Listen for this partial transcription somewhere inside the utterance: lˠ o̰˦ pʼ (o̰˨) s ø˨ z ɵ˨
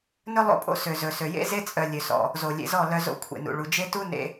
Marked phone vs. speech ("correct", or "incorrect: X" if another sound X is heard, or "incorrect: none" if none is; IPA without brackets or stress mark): incorrect: o̰˦